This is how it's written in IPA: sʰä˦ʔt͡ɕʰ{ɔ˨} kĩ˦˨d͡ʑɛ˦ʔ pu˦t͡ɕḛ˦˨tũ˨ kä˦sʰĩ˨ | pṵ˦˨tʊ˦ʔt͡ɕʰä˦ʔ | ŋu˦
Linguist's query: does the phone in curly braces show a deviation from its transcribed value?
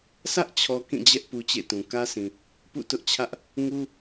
no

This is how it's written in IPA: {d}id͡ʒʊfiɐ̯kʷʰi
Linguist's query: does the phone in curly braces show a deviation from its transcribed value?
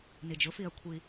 yes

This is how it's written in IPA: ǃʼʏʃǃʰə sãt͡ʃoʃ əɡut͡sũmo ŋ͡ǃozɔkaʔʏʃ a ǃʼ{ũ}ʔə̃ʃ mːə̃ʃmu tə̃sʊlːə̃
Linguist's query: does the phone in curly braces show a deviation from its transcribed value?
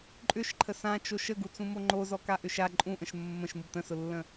no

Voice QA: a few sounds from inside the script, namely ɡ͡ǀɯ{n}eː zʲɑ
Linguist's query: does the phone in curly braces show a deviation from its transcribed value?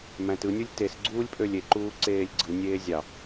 yes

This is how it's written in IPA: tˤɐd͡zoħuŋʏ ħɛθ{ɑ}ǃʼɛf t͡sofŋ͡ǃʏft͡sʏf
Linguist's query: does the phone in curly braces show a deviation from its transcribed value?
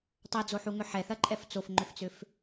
yes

